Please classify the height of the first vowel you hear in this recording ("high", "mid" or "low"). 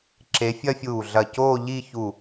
mid